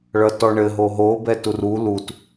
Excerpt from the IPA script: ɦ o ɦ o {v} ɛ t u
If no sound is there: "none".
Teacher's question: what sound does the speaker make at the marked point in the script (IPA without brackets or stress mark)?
b